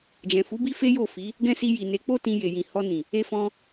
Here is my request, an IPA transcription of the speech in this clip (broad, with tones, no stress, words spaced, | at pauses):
d͡ʒɛ̃˨fu˨˦ bi˦fe˦ jo˦˨fi˨˦ | ɡɛ̃˦si˧ ji˨ne˨˦k͡po˦ tĩ˧je˨jĩ˨ hɔ˧nĩ˨ | e˧fɔ̃˧